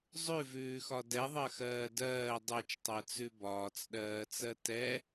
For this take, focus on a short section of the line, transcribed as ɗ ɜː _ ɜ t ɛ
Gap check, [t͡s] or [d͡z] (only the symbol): t͡s